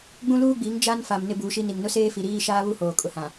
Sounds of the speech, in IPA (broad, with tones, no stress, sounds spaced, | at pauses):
ɡ͡b ũ˦ l uː˦ ɡ͡b iː˨˦ ŋ d͡ʒ a˦ n f a˨ m n ɪ˦ b uː˨˦ ʃ i˦ n i˨ ŋ n ʊ˦ s eː˦ f i˨ ɾ iː˦ ʃ aː˦ β u˦ h oː˨ kʼ ʊ˦ h ã˨